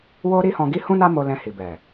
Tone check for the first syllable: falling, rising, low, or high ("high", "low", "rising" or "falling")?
high